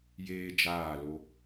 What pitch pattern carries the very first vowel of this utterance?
high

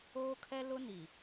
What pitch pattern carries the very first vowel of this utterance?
high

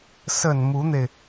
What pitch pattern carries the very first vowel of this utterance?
low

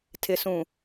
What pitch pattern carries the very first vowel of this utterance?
low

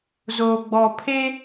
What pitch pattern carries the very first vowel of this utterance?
low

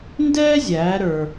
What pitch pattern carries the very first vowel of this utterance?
high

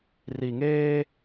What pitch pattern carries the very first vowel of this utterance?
low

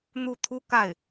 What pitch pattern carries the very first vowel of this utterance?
falling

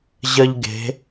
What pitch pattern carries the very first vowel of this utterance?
high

